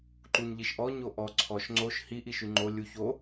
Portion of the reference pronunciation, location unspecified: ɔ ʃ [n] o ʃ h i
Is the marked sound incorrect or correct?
incorrect